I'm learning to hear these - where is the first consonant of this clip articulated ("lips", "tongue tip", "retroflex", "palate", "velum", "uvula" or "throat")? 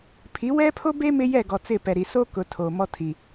lips